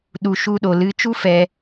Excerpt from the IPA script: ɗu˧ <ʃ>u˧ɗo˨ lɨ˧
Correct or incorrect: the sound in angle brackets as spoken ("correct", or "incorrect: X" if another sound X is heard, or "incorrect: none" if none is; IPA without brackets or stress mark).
correct